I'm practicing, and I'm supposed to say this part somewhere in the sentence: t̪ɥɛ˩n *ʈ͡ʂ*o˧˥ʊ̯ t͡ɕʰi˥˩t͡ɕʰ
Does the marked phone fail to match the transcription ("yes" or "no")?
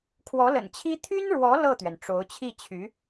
no